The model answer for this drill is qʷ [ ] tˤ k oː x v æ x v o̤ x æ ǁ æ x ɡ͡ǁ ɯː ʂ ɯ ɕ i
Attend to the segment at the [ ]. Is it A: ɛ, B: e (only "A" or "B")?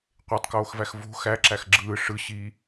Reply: B